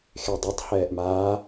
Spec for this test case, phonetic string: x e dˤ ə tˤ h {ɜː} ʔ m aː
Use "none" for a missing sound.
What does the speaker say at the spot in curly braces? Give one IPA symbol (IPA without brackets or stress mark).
ɛː